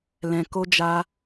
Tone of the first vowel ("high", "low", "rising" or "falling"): low